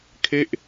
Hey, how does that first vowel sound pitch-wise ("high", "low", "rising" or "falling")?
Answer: falling